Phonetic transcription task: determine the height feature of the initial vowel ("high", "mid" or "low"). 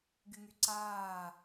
high